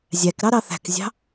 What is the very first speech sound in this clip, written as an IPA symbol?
zʲ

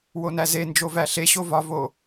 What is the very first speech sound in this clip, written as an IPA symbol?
w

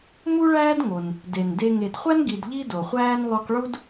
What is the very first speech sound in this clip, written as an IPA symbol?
m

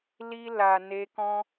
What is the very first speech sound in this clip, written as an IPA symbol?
l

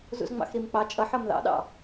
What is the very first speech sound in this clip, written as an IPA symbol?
z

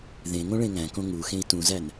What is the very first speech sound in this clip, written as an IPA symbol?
ð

